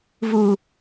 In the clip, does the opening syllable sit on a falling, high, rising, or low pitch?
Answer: low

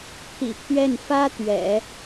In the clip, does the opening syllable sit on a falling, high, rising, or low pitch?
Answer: low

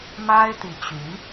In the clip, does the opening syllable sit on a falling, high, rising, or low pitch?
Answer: high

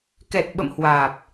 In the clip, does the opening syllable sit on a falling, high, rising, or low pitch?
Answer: low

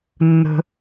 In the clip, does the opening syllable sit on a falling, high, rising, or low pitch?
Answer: high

